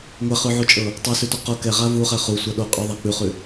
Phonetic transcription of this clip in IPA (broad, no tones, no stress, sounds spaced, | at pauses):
ŋʷ ɛ χ ʉ ʕ u t͡ʃʼ ɤ | tˤ o s ʉ t o q o k ɛ ʁ a v u χ ɛ χ u sʷ a ɗ o qʼ ʉ ðˤ a k͡p ʉ χ ʉ